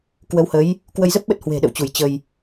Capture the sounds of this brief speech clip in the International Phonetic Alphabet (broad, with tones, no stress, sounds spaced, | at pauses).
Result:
k w ə˨˦ w h ə˨˦ j | k w ə˧ j z ə˦˥ p̚ ɓ ə˦˥ t̚ h w e̤˨˩ ɗ ə̰˧˨ w t͡ɕ u˧˩ j t͡ɕ ə˧ j